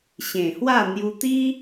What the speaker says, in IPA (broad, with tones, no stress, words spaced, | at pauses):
ɕẽ˨˩hwa˥˧ n̪ju˧t̪i˦